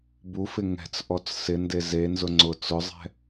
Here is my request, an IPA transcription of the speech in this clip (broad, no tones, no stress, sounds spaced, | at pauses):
b u f ɪ ŋ ɛ̤ t͡s ʔ ɔ t͡s s ɪ n d e z e n z ʊ ŋ͡ǀ ʊ t͡s ʊ zˤ ɛ̤